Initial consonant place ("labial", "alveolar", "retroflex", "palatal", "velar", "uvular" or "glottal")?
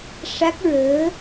retroflex